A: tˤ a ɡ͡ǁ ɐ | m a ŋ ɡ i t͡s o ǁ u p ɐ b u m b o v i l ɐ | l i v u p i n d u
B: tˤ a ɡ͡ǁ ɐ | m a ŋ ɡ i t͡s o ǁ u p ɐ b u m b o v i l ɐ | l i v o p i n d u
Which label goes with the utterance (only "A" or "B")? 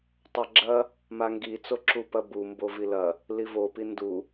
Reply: B